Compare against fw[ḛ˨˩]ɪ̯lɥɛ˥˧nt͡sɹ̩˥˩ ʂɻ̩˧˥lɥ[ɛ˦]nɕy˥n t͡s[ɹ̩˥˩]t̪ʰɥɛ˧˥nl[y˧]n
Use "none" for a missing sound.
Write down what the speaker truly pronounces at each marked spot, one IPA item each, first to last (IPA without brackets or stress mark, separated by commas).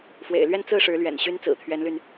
ḛ˨˩, ɛ̰˨˩, ɹ̩˨˩, y˧